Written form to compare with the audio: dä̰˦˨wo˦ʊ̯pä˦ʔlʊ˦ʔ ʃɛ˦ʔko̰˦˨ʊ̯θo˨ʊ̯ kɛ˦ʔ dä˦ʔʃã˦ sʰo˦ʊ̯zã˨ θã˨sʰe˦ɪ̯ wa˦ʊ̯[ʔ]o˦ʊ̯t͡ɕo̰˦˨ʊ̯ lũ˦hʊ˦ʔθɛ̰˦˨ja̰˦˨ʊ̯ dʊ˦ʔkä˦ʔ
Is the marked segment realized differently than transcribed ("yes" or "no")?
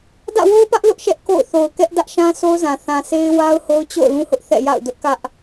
yes